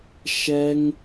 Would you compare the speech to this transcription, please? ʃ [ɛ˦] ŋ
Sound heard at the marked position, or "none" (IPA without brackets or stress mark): ɛ˦